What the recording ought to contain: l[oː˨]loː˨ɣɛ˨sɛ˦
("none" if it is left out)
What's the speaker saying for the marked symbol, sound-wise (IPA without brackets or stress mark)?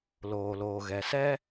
oː˨